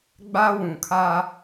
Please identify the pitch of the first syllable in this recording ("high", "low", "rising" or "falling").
high